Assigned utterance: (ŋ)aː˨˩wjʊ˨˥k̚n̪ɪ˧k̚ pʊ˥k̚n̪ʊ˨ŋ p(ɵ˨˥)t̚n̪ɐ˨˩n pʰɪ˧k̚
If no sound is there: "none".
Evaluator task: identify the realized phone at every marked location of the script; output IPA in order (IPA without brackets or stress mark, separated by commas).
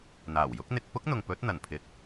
n̪, ɵ˨˥